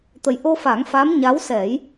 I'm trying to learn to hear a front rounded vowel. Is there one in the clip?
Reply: no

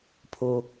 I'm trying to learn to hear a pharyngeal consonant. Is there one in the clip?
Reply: no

